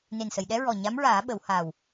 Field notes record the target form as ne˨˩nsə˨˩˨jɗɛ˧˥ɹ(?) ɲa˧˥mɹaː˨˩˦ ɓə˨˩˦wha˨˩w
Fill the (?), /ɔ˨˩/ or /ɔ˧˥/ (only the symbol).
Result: ɔ˨˩